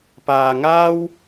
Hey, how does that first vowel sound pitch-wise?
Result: low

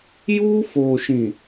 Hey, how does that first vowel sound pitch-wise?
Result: high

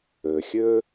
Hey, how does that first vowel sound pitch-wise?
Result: low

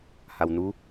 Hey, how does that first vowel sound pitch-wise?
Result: low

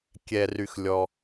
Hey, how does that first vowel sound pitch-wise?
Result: low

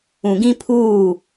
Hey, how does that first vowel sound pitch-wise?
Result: low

